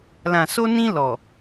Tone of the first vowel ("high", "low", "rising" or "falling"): low